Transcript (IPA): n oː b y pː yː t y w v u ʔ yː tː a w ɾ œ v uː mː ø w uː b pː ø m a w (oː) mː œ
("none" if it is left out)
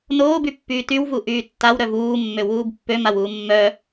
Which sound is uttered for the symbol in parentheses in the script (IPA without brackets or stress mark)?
uː